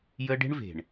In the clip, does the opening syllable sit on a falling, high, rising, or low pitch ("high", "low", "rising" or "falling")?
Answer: high